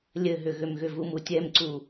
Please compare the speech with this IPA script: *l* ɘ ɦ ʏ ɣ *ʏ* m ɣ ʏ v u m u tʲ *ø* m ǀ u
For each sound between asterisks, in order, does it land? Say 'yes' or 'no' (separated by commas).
no, yes, no